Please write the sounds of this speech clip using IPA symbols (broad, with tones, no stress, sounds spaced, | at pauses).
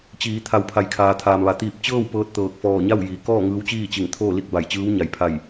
t͡ɕ iː˩˧ t̪ʰ a˩˧ w pʰ a˩ j kʰ aː˩ t̪ʰ aː˩ m ʋ a˩ t̪ iː˧˩ p̚ t͡ɕ ɤː˥˨ w p ɤː˧˥ t̚ t̪ ɤː˧˩ k̚ f ɔː˧˩ ɲ a˥˨ w j iː˩ k ɔː˥˨ ŋ ɯː˧˥ w t͡ɕ iː˥˨ t͡ɕ i˧˩ ŋ t̪ʰ oː˥˨ l i˥˨ k̚ b a˧˩ j t͡ɕ ɯː˧˥ w ɲ a˩ j pʰ a˧˩ j